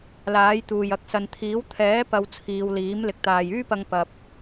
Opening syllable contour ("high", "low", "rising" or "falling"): rising